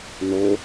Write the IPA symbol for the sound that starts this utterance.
n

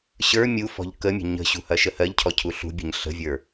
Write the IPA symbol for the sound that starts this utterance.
ɕ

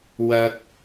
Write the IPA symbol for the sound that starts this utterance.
w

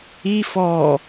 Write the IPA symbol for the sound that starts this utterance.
i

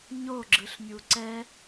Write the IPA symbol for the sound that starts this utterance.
ɲ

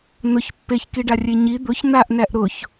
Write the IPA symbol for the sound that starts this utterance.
n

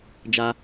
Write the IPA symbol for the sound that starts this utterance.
d͡ʒ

